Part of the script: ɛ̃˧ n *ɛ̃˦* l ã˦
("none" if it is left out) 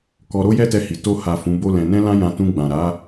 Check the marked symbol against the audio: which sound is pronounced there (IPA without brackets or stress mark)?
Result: ɛ̃˦